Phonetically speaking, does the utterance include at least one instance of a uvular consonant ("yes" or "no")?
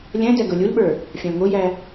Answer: no